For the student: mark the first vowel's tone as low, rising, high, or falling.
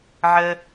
low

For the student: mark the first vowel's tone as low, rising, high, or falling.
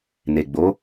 low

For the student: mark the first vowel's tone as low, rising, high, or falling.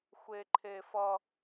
high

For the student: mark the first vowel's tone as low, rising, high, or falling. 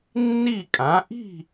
falling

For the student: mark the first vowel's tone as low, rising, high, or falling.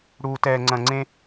low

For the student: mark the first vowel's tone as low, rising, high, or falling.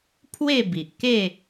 falling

